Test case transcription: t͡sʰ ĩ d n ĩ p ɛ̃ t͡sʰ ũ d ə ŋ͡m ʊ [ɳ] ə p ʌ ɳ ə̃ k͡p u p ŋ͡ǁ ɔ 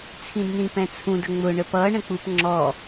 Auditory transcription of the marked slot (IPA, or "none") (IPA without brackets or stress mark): ɳ